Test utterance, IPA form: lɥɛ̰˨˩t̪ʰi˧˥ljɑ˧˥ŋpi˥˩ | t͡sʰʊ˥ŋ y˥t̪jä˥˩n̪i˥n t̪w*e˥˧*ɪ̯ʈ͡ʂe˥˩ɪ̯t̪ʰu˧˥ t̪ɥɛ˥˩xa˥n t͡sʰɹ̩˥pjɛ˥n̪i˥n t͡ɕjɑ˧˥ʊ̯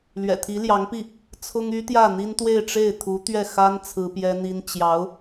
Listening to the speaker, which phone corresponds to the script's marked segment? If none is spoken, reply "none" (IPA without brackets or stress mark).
e˥˧